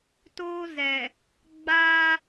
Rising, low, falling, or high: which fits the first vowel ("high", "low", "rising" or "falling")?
high